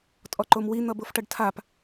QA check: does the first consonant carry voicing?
no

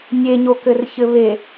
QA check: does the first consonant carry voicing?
yes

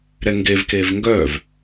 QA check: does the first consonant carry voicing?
yes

